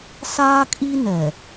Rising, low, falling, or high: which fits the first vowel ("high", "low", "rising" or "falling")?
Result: high